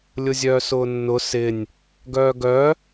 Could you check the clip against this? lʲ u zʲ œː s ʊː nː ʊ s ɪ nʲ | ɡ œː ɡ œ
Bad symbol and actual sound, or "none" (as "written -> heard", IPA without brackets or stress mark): u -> ʊ